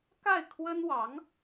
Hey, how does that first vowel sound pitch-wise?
falling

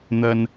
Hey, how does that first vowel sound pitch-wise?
low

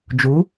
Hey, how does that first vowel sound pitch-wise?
rising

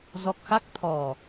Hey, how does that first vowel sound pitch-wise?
low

